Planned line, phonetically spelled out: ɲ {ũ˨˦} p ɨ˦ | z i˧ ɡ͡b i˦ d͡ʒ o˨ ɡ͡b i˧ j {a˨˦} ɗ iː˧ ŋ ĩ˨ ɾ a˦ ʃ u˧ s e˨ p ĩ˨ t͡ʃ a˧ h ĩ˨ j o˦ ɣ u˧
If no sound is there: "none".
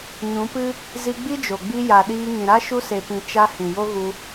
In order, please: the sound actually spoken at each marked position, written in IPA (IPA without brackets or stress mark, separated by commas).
ũ˨˦, a˨